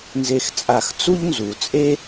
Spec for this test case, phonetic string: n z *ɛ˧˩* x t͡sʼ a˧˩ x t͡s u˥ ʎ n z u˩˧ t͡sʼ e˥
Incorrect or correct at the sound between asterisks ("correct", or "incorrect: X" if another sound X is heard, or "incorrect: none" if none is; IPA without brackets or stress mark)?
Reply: incorrect: e˧˩